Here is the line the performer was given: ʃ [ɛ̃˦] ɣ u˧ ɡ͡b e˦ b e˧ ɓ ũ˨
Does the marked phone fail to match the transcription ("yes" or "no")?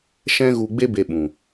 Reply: no